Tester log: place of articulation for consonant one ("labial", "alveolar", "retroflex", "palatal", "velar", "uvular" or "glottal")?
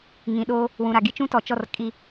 velar